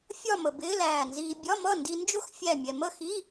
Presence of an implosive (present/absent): absent